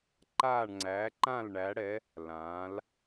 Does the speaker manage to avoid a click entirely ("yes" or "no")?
no